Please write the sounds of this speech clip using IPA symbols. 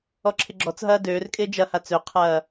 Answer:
ɔǁʰɪɡ͡ǁɔt͡sɦɐː døːrkʼɪː d͡ʒɐha t͡søqʰɐː

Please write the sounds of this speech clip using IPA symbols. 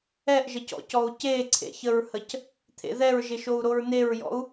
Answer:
ɛʔʒəcɔ̰cɔu̯ ceǀʰḛçəɹhəc | t̪ʰḛðɛɹʒɪʃou̯ ɾoɹneɹjɔ̰u̯

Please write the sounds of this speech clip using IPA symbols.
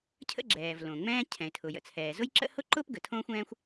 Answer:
cʰə̰˥ ɡ͡ǁɛː˩v lõ˩ŋ͡mɛ̃ː˥ cʰɛ̃˩ɪ̯tʰʊ˩jə̰˩t͡sʰɛː˩ zʊ˥jǁə̰˥ hʊ˥ǃʊː˥pɡə˩ tʰõː˥xʷɛ̃ː˥xʷ

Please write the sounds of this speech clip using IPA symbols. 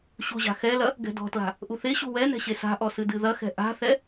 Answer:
ɕuʑa̤xɛlɐ | ɡɛ̤dɔ̤tla̤ | ʔuθeɕu wɛ nɛ̤ɕesa̤ʔɔ sɨdɨðɐxɛ̤ ʔa̤θɛ

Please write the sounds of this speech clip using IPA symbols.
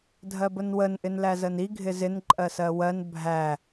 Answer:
dʱɜbənwən ʔɪnlæzəni ɡʱɪzɪn ǃʼɜsɜwɜn bʱæ

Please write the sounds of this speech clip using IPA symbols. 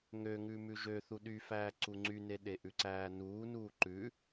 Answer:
ŋøŋʉ mʉʒøθu ɗyfæː ǀuŋ͡ǀyne ɗeʔʉǀæːnuː nuːǃʉ

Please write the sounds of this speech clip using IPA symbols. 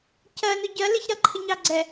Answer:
cɜnʊ ɟɜ lɪç ɾʌǃʰɪɲɑ ɡ͡ǀɛ

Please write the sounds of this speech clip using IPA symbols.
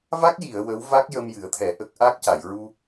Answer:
va˦˥k̚ji˨˩˨ə̯ wə˧˥w va˦˥k̚jə˧m jɨ˨˩˦ə̯t̪ʰɛ˨˩˦ ʔə˦˥k̚ ʔa˦˥k̚ca˨˩˨j ɹu˧

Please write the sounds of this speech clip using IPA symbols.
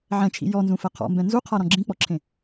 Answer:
ʕɛ̃t͡ʃʰḭ jɔnzũfɛ qʰɔ̰mbɛ̃ nzuqʰaɾɔ̃ ɡ͡ǁĩk͡pɔǁʰẽ

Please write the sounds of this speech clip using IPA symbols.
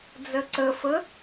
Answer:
d͡zɘǀɘfɘ

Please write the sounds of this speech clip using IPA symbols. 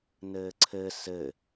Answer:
nɘːǀʰɘ sɘ

